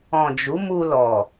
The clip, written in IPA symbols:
ɔ̃˨ d͡ʒ u˨˦ m u˧ l ɔ˨

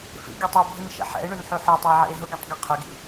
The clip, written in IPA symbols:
f ḭ ɡʲ œ tˤ ɛ bʱ i n ʃ ɛ̰ ħ ɛ̰ e̯ ɳ y n ħ y ħ œ tˤ ɐ e̯ ʕ ḭ e̯ ɦ ʊ ɡ y tˤ ɡ i qʰ ʏ ɡ ḭ

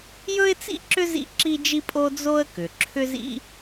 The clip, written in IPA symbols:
j ɵ˥ ɪ̯ t͡s ḭ˥ ǁ ʏ˥ z ḭ˥ ǁ i˥ d͡ʒ i˥ pʼ o˥ d͡z o˥ ə̯ k ʏ˩ ǁʰ ʏ˥ z ḭ˥

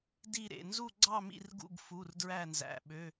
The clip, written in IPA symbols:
d i˦˨ ɾ ḛ˩˧˩ n z u˦˨ ɡ͡ǀ ɑ˦˨ m ḭ˦˨ r ɡ ṵ˦˨ ɡ f u˩˧˩ r d ɹ æ˦˨ n z æ̰˩˧˩ ɓ ø˩˧˩

